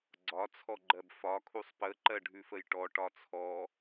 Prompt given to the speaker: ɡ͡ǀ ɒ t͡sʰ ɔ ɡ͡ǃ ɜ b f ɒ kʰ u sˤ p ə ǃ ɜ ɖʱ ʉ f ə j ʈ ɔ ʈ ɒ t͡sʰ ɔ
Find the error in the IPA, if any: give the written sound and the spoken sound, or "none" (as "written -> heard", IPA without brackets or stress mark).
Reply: none